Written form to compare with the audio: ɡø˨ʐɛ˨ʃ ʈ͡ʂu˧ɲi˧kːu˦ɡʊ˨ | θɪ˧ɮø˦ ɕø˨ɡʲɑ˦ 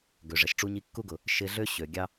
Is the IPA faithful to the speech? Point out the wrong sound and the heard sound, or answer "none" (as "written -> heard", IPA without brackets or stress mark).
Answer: θ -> ʃ